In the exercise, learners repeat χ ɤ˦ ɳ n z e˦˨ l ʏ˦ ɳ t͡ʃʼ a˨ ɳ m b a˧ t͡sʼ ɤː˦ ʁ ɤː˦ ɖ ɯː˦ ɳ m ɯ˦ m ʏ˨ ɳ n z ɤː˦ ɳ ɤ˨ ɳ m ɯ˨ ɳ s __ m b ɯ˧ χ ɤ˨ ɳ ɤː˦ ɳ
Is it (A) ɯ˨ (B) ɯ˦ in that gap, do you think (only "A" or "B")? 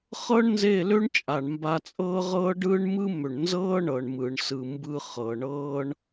A